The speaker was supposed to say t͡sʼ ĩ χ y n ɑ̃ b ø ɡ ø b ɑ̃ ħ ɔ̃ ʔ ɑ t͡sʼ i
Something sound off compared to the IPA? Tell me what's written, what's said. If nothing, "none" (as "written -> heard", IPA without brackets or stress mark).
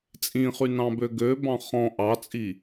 ħ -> χ